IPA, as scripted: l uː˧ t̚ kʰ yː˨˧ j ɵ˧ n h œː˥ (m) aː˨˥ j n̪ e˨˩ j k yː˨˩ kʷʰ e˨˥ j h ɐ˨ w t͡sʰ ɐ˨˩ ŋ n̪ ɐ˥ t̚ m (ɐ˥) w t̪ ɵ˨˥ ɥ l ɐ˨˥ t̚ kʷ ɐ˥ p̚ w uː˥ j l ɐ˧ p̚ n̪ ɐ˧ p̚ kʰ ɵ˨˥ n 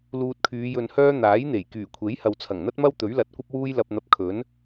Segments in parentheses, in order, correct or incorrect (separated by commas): incorrect, correct